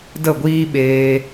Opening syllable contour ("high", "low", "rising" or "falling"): falling